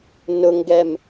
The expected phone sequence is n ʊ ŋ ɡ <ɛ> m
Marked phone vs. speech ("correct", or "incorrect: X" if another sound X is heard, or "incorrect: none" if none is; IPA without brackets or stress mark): correct